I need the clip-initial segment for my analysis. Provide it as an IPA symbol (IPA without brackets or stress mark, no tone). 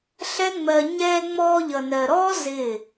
ɬ